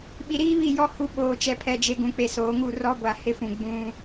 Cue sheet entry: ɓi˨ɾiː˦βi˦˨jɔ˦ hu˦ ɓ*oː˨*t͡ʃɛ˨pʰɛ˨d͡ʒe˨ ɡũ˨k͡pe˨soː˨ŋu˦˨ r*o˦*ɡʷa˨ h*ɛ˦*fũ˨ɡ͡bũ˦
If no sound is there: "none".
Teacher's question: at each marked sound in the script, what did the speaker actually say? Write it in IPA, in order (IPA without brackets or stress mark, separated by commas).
oː˨, ɔ˦, ɪ˦